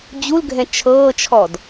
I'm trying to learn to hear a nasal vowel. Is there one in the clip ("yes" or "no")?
yes